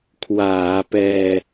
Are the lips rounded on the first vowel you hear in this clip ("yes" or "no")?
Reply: no